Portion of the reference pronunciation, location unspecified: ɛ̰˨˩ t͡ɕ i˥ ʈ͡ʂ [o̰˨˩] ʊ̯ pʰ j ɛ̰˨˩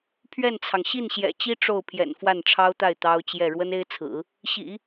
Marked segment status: incorrect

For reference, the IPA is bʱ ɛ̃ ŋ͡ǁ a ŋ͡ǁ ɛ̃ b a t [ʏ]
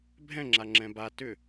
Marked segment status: correct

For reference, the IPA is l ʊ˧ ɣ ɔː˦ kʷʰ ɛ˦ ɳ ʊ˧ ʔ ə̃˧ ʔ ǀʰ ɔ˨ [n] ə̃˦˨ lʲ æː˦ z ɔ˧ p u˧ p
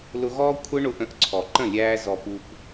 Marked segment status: incorrect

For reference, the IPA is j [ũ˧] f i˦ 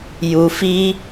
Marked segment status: incorrect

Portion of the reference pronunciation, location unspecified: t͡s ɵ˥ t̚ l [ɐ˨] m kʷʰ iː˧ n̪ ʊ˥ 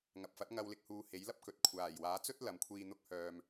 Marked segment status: correct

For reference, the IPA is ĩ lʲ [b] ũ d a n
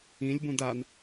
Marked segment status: correct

